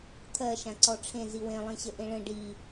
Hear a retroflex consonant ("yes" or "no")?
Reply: yes